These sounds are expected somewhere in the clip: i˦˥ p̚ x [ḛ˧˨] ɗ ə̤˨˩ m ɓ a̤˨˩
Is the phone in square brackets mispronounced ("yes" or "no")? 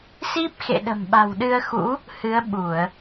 no